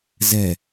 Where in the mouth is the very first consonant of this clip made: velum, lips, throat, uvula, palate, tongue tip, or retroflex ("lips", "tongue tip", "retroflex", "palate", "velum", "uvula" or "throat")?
tongue tip